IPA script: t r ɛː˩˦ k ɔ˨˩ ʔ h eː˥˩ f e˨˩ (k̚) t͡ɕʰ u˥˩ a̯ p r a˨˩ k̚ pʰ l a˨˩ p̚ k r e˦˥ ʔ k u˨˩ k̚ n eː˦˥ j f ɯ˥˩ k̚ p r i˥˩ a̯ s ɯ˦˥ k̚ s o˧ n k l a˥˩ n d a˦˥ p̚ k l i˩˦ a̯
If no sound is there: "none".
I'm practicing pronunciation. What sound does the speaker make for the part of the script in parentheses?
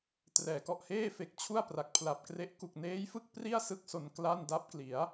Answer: k̚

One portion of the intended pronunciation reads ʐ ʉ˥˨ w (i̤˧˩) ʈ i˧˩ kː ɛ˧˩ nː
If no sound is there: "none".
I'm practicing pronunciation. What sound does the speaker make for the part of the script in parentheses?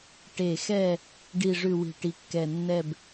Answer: i̤˧˩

